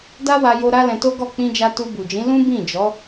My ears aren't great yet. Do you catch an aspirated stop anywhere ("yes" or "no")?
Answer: no